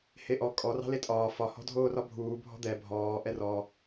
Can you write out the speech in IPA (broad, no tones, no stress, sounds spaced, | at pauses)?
h e ʔ ɔ kʼ ɔ r ɑ̤ l e tʼ ɒː f ɒ h ɔ̤ dʱ oː r ɒ bʱ uː bʱ ɔ̤ d̪ ɛ bʱ ɔː ʔ ɛ r ɔ